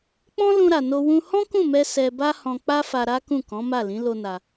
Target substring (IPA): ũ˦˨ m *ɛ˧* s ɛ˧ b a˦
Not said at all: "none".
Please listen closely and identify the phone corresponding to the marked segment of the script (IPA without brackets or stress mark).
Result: ɛ˧